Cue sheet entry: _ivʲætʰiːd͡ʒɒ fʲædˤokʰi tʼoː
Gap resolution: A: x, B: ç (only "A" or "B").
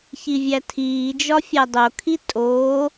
B